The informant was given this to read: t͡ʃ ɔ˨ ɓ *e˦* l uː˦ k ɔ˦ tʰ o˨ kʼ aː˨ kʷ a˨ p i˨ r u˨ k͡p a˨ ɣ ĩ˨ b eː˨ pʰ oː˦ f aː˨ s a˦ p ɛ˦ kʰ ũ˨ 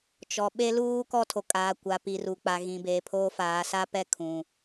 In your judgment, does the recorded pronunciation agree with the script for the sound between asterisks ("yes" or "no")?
yes